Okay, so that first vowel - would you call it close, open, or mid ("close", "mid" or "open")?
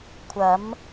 open